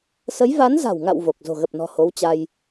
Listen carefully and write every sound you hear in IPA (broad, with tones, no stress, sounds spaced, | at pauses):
s ə˨˦ j v a˨˦ n z a̤˨˩ w ŋ a̰˧˨ w v o˨˩ k̚ z o̤˨˩ ɣ ə˨˩ p̚ n ɔ̤˨˩ h o˨˦ w t͡ɕ a˧ j